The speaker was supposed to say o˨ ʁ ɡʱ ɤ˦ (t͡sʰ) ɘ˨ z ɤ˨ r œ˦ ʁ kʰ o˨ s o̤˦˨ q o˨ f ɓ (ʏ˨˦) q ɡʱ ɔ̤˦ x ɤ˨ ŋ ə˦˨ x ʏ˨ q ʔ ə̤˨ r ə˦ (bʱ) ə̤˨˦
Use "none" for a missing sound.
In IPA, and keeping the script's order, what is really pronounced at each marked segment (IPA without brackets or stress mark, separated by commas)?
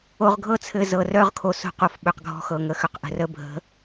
t͡sʰ, ʏ˨, bʱ